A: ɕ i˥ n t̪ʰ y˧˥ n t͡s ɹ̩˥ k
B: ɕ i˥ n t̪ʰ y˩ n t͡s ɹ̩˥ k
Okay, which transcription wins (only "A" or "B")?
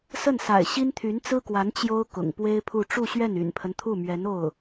A